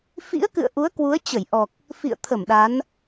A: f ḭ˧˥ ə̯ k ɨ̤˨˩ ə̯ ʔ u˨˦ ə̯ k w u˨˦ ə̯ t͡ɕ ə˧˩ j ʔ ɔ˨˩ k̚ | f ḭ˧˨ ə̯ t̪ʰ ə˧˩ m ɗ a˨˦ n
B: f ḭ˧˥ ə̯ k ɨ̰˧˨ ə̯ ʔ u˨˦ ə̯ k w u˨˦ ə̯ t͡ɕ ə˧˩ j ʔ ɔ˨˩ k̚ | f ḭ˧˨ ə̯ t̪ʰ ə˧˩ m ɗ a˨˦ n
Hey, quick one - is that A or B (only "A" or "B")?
B